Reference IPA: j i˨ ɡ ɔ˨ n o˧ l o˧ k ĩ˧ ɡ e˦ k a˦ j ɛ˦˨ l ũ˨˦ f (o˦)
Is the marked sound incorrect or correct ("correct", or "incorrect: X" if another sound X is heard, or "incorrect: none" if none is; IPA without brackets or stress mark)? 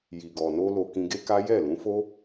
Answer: correct